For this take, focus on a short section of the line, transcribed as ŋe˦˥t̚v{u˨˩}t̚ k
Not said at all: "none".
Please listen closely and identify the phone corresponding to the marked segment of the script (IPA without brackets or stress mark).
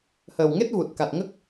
u˨˩